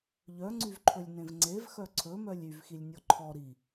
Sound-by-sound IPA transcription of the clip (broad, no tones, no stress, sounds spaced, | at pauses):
ʎ œ ŋ͡ǀ y v ǃʰ ɵ lʲ n ẽ v ŋ͡ǀ e v x œ ǀʰ ɵ m œ lʲ y v x i lʲ nʲ ɔ ǃʰ ɔ ɾ i